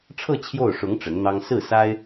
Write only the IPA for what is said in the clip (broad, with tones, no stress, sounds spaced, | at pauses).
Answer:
ʈ͡ʂʰ ɤ˥˧ t͡ɕʰ j o˥˩ ʊ̯ ʂ ʊ˧˥ ŋ ʈ͡ʂ ə˧˥ n n̪ ɑ˥ ŋ s ɹ̩˥˩ s a˥ ɪ̯